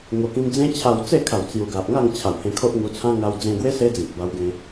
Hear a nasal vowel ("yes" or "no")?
yes